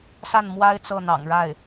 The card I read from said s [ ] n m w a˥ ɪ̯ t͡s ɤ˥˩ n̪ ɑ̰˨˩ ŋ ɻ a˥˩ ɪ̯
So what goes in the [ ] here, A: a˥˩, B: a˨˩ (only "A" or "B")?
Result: A